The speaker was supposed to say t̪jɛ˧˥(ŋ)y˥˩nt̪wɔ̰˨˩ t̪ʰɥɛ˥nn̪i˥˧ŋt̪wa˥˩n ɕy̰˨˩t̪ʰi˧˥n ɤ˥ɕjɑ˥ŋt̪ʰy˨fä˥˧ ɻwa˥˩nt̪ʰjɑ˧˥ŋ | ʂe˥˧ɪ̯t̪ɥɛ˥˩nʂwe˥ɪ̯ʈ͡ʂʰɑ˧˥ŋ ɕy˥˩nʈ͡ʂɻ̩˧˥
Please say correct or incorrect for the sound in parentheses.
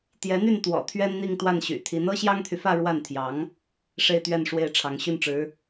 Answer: incorrect